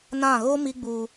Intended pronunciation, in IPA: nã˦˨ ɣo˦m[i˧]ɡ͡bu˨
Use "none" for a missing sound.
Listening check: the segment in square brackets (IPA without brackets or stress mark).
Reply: i˧